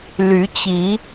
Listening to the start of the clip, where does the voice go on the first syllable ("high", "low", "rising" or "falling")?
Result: rising